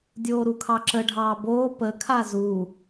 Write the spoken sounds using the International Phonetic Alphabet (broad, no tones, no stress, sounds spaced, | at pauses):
dʲ oː ɾ u kʰ ɑ ǁ ə ɖʱ ɑː b oː p ə kʰ a z u